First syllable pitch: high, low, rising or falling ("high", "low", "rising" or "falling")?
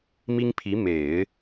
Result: high